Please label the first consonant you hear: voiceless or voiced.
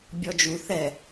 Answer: voiced